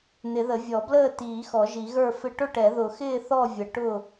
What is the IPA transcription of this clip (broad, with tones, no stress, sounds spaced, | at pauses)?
n̪ ɪ˨˩˦ ð ə˨˩˦ vʲ ɔ˨˩˦ b l əː˥˨ t iː˨˩˦ x ɔ˨˩˦ ʒ i˨˩˦ ɣ ə˞˥˨ f ɪ˥˨ ʈ ʊ˥˨ ʈ ɛ˨˩˦ ð ʊ˨˩˦ x ɪː˥˨ θ ɔ˥˨ vʲ ə˨˩˦ ʈ ʊ˥˨